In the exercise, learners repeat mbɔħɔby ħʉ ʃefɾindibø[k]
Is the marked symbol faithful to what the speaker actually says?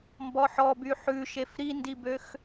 no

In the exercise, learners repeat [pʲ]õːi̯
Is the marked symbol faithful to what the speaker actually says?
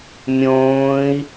no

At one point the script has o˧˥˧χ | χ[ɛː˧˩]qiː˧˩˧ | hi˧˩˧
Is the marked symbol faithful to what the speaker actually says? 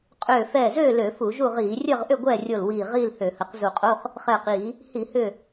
yes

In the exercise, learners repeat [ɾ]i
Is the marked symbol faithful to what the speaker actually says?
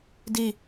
no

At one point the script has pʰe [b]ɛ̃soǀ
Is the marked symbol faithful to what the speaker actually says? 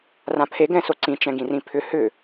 no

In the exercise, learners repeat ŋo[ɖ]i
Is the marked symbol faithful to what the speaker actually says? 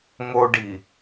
yes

